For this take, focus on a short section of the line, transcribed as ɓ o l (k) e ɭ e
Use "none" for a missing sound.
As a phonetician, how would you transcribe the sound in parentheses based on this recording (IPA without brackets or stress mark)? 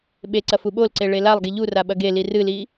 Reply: ǀ